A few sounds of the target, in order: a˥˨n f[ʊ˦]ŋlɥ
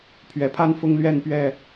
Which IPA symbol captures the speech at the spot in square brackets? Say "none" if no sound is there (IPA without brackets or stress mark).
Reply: ʊ˦